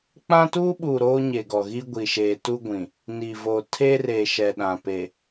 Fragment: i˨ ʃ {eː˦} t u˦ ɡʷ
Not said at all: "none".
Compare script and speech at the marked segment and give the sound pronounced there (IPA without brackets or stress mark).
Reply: eː˨